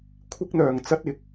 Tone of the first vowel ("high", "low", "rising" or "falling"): high